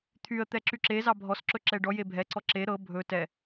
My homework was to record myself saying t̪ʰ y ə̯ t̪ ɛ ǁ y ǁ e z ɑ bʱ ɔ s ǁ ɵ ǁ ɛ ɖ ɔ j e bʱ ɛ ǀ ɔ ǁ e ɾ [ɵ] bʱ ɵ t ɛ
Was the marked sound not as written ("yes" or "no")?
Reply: yes